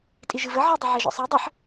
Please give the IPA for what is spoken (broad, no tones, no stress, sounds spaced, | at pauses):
tʼ i ʒ ɨ v ə ʕ ɨ dˤ ɨ ʕ ɛ ʒ ɔ̰ sˤ ɛ dˤ ə ħ